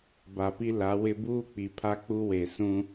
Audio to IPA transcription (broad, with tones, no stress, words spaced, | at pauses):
ba˨pi˦la˨˦wɪ˦ buː˦k͡pi˨ pʰa˦k͡pu˦we˨ sũ˦